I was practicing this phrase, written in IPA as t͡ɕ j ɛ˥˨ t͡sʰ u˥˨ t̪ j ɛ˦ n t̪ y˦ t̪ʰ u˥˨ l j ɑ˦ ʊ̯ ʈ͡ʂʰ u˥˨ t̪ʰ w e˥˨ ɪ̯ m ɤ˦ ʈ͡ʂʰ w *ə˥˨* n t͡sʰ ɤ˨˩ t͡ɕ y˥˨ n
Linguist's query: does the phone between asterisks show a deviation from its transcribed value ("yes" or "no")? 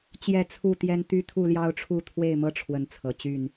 yes